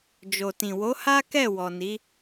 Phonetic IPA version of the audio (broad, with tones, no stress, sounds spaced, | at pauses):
d͡ʒ o˨ t ĩ˨ w o˨˦ h a˦ k ɛ˦˨ w ɔ˨ n i˨˦